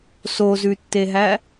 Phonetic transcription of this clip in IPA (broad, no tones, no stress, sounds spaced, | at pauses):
s o z ʉ tː e ɦ æ